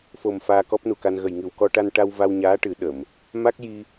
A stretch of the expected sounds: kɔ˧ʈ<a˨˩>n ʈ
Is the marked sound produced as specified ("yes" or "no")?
no